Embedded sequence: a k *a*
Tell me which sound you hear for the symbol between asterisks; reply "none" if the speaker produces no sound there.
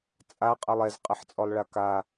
a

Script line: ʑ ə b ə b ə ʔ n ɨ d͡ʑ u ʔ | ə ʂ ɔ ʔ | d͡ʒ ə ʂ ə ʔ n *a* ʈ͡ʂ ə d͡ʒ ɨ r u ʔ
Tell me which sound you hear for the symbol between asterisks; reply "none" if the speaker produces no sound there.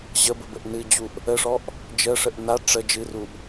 a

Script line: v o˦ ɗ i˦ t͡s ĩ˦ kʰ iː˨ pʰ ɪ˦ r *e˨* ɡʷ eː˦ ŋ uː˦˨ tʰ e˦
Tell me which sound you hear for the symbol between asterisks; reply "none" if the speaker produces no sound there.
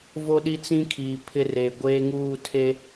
e˨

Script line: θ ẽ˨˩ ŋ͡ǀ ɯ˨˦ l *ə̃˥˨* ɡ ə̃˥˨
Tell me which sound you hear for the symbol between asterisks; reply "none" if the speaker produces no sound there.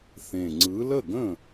ə˥˨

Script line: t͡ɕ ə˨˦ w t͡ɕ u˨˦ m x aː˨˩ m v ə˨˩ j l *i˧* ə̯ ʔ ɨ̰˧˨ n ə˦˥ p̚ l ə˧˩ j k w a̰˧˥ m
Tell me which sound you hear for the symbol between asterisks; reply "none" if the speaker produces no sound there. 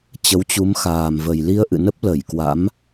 i˧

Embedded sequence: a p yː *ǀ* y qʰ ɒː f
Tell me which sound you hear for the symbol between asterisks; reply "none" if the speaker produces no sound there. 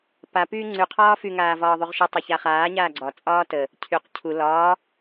ŋ͡ǀ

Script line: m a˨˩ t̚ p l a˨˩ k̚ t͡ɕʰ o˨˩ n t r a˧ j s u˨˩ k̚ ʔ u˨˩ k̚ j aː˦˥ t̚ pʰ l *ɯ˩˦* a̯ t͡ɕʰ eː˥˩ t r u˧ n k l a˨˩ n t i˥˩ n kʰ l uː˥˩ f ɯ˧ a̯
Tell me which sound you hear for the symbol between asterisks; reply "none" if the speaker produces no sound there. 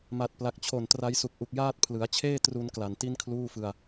ɯ˩˦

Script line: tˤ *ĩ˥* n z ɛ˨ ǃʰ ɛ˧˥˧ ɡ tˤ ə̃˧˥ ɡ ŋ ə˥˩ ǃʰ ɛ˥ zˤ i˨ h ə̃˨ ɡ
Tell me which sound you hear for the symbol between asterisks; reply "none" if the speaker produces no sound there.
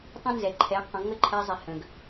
ĩ˥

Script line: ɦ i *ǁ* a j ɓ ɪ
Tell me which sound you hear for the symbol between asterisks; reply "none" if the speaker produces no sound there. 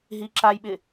ǁ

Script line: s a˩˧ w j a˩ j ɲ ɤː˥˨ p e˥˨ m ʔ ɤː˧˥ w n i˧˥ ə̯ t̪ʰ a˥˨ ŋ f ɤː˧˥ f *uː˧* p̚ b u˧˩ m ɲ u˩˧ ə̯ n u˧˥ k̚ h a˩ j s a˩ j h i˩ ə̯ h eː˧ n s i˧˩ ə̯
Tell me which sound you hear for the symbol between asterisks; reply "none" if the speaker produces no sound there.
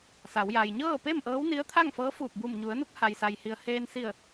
uː˧˩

